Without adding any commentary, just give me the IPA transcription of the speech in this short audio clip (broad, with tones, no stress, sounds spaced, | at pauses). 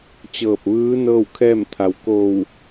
t͡ɕ ɤː˧˩ p̚ ʋ ɯː˧˥ n ɤː˥˨ w kʰ ɛː˥˨ m t̪ʰ a˩˧ w k o˧˩ w